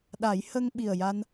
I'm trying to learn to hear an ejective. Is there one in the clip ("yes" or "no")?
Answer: no